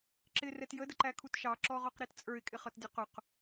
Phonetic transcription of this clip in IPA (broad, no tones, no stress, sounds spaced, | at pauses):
ǁ ɪ r ɛ t j ə d ə ǃ æ kʰ u t ʃ ɑ ǁ ɔ ʁ ɔ q ɾ i t t͡sʼ ə˞ ɪ̯ kʼ ɪ χ ʌ t dʲ ʌ q ʊ q